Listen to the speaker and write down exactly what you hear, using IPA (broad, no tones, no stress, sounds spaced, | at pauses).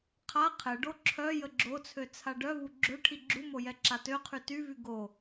qʰ a qʰ ɛ ɖ o ǁʰ œ j ə ɡ͡ǁ o t͡sʰ ø t͡sʰ a ɖ œ v u ɡ͡ǁ ø ʈʰ i ɡ͡ǁ u m o j ɛ ǁ a t ø qʰ y t y v y ɡ o